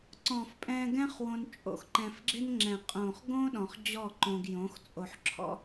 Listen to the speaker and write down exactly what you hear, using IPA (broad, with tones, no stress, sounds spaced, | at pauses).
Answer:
ǀ ɔ̃˨ f pʼ ɛ̃˧ ɡ ɛ̃˦ χ w õ˧ n t͡ʃʼ o̰˧ x ǃ ɛ̃˧ f ɡ͡ǁ ɪ˦ n ŋ͡ǁ ɛ̃˨ qʼ õ˨ χ ɡ õ˦ ɗ ɔ̃˧ χ d͡ʑ ɔ˦˨ ǃ õ˧ ɡ j õ˨˦ x t͡sʼ o˧ ħ ǁʰ ɔ̰˦